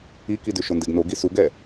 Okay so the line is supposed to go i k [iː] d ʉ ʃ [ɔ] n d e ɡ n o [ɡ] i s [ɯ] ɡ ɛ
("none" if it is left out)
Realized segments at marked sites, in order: i, o, ɡ, u

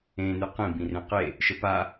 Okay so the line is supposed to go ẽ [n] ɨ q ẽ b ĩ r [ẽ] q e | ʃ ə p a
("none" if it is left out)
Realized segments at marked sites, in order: n, ẽ

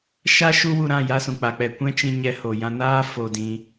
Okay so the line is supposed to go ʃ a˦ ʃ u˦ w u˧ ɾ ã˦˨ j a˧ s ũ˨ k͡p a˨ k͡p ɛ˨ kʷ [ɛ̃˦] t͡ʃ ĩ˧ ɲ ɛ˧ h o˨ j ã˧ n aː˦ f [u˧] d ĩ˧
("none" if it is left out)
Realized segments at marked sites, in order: ɛ̃˦, o˧

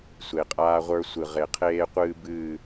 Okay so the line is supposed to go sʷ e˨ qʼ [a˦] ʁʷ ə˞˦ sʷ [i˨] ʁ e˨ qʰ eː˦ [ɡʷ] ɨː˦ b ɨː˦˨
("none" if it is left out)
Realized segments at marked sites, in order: aː˦, ɨ˨, qʷ

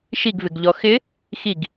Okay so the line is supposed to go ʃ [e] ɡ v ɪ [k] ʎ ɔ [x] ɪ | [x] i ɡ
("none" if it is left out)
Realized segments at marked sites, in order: i, ɡ, x, x

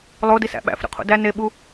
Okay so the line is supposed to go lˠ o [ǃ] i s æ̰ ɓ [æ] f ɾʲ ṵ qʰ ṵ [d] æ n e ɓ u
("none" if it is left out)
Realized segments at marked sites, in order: d, æ̰, d

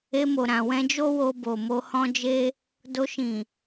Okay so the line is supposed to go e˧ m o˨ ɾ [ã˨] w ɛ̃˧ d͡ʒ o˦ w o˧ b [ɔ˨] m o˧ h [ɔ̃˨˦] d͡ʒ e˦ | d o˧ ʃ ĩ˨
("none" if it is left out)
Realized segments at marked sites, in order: ã˨, o˨, ɔ̃˦

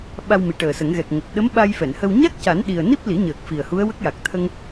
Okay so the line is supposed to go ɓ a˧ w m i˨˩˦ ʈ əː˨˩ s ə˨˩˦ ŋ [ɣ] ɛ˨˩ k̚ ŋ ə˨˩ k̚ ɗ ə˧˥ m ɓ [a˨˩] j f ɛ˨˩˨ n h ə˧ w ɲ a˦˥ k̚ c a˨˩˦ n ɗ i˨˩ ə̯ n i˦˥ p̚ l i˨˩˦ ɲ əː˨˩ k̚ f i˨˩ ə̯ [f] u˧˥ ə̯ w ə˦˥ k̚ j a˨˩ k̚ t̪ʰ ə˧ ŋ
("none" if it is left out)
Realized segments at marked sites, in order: ɣ, a˧, h

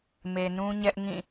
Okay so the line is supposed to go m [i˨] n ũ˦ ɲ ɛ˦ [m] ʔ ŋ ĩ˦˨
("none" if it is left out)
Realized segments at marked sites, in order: e˨, none

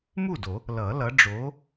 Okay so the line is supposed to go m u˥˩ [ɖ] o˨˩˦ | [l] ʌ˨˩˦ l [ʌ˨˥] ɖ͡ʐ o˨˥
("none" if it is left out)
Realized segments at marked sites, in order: d, l, ʌ˨˥

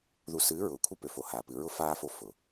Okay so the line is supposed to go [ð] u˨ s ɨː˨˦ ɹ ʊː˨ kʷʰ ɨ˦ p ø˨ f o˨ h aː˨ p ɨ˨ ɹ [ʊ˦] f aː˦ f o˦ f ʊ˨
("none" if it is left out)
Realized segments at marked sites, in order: ð, ʊ˦

